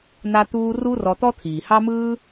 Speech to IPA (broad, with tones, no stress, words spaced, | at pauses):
n̪a˦t̪uː˦ ru˦rɔ˧t̪ɔ˦ t̪ʰiː˨ hɑ˦mɯː˦